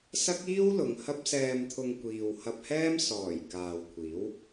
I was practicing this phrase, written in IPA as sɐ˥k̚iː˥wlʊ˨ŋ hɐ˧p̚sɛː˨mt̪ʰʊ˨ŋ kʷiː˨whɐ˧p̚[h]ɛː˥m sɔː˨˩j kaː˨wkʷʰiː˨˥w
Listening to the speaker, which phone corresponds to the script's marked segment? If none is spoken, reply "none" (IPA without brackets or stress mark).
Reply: h